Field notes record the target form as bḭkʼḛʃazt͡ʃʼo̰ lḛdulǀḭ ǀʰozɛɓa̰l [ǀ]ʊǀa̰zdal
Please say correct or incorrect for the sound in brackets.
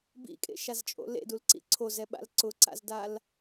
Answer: correct